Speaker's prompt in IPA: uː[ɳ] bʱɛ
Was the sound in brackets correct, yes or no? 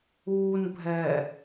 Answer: no